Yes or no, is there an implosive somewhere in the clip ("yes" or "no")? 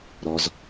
no